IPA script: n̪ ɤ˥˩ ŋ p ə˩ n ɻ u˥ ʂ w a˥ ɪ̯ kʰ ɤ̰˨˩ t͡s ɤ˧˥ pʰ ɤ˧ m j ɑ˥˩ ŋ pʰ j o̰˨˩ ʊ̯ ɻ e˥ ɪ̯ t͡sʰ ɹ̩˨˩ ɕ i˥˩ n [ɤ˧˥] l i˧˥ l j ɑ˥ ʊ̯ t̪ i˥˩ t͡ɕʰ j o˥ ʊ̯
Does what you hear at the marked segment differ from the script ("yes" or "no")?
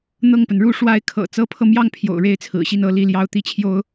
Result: no